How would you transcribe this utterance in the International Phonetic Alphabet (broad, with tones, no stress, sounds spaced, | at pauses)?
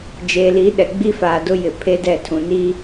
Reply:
d͡ʒ eː˨ l i˨˦ ɗ ɛ˨ ɡ͡b i˦ f aː˨ d ʊ˦ j ɪ˨ pʰ e˦ d ɛ˦˨ tʰ ũ˨ n i˦